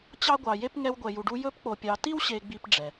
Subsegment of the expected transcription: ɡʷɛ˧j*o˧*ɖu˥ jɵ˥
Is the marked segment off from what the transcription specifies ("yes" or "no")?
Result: yes